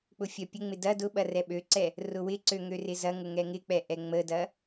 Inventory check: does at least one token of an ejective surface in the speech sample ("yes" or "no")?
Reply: no